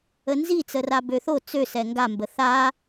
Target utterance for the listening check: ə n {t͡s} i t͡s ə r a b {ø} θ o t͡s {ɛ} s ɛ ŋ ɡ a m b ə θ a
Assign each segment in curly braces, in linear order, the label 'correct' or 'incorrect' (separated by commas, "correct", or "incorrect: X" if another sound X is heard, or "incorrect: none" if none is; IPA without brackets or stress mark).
incorrect: z, correct, incorrect: ø